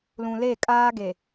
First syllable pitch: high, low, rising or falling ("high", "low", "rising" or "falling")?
low